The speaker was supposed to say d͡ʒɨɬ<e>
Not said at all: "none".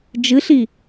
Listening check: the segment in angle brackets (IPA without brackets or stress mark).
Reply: i